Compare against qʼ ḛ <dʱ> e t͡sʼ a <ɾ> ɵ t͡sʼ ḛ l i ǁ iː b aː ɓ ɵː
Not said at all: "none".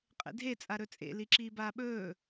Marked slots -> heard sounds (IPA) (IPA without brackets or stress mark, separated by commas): dʱ, ɾ